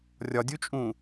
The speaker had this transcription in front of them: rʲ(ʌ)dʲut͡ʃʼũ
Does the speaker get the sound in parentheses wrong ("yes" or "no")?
yes